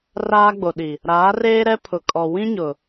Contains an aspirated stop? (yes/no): yes